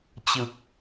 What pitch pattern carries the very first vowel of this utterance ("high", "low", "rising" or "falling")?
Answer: low